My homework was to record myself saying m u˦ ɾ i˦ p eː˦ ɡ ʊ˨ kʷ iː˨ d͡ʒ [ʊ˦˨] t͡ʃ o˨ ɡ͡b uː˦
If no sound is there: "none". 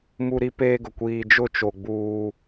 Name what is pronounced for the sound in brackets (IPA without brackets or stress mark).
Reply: ʊ˦˨